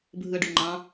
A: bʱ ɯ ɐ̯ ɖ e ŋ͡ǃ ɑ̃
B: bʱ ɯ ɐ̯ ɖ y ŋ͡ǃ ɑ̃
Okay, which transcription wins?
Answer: B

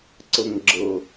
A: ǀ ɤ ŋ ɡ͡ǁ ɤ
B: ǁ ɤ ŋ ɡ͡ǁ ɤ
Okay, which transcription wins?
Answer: A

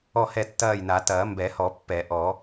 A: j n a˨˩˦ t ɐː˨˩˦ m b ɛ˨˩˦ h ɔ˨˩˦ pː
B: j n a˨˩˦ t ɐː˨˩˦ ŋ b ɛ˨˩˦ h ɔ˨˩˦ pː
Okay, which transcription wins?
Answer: A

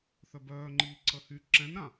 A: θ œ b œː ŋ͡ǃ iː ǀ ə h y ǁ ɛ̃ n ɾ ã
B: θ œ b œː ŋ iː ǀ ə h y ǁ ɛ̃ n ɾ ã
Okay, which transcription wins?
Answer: A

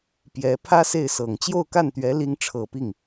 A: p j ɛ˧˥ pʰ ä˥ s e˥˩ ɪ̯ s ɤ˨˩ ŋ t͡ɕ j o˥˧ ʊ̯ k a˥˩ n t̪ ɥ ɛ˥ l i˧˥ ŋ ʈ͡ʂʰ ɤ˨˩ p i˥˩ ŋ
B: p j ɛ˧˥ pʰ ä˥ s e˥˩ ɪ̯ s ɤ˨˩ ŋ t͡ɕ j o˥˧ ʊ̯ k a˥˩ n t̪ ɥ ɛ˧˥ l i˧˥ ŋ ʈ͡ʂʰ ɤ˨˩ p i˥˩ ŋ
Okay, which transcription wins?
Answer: B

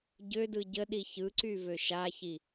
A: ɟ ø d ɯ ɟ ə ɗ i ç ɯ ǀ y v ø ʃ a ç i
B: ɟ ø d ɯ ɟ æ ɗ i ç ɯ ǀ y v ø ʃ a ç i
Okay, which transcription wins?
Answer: A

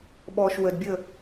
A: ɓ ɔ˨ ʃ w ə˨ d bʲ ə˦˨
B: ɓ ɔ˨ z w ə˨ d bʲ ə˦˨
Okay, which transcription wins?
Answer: A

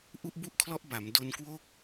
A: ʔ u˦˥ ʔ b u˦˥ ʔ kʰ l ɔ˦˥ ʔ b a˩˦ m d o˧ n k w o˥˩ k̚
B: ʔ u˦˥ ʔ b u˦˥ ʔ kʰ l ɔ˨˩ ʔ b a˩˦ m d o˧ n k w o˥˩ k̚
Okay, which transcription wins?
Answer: A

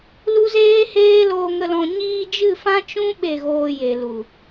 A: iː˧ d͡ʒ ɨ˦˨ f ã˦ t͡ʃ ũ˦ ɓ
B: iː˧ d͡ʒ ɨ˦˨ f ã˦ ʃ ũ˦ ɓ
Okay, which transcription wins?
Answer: A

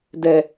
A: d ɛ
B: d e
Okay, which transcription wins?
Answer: A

